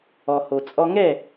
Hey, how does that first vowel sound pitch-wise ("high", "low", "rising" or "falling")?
low